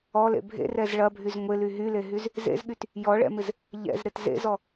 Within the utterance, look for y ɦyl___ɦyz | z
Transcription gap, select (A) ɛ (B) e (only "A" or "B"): B